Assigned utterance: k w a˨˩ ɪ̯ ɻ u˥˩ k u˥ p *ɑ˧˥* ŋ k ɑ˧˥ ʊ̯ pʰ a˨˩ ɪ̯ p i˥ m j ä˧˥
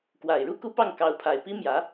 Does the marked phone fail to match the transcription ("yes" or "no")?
yes